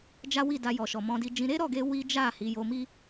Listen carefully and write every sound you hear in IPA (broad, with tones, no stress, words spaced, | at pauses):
d͡ʒa˦wi˦˨da˧ jɔ˨ʃɔ˨ mɔ̃˧di˧d͡ʒĩ˧ ɾe˦ɾɔ˦˨ɡe˧ wi˦d͡ʒa˦˨ hi˨˦jo˧mi˦